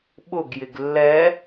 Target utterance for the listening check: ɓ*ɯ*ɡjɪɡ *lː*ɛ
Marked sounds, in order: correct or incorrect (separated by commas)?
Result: incorrect, correct